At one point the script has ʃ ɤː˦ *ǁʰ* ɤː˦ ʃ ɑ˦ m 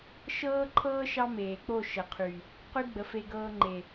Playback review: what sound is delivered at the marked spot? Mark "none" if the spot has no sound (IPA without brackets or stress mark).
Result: ǃʰ